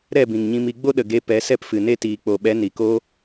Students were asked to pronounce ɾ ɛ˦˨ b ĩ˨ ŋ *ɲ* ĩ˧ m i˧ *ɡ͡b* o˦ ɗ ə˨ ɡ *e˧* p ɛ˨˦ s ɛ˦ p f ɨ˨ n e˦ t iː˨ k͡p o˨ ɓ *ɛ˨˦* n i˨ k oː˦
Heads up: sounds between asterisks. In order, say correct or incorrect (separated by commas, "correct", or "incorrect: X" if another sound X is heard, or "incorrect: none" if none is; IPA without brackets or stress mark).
correct, correct, correct, correct